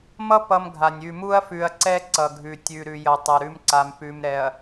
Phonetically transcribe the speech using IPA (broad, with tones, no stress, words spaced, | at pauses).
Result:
mʌ˦ pʌ˦mɡʱa˨nʲ ʉ˨mu˦ɐ̯fʉ˨ɐ̯ǀɛ˦ ǀʌ˨ɡʱʉ˨ tʲʉ˨ ɾʉ˨jʌ˨tˤʌ˨ ɾʉ˦mǀa˨m pʉ˨mɾɛ˨ɐ̯